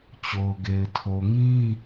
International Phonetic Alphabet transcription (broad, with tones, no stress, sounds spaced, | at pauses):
t͡ɕ o˨ ʊ̯ ɡ e˨ ɪ̯ tʰ o˨ ŋ ĩ˦